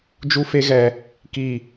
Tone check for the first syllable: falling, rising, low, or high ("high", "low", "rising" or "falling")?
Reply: high